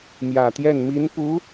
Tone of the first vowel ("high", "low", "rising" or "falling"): low